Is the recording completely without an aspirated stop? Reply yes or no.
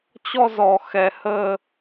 yes